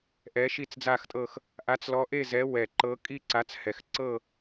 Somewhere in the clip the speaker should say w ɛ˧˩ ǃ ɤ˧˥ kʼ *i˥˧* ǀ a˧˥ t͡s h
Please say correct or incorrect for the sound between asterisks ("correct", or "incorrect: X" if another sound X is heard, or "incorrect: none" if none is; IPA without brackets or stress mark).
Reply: correct